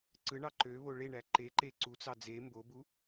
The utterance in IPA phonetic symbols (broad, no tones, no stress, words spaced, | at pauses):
ǀɯɳɑ ǃøβo ɭeɳæ ǃeǃe ǀut͡sɑ d͡ze mbobu